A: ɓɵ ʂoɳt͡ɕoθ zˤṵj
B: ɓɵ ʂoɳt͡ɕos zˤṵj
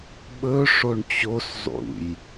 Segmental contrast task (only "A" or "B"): B